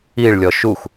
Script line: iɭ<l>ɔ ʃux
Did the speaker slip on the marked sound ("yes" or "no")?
yes